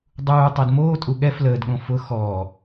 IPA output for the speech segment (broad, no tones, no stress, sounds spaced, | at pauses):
dˤ uː tˤ əː d m oː tʼ u ɠ ɛ f l əː d ɠ õ f ʊ x ɔː